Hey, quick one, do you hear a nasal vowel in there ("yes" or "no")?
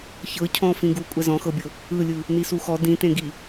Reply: yes